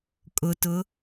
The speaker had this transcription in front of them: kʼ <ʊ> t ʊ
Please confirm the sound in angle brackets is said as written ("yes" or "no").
yes